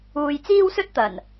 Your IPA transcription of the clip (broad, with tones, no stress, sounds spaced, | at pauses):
uː˧ j t͡s iː˥ w s ɵ˥ t̚ t̪ ɐ˨˩ n